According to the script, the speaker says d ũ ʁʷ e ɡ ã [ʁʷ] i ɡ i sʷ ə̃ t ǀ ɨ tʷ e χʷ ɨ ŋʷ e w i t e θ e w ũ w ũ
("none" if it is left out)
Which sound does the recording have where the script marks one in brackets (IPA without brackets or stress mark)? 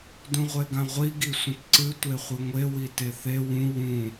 ʁʷ